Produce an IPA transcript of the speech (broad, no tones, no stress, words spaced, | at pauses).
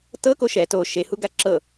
tɤko ʃɛ to ʃehuɡa ǁɤ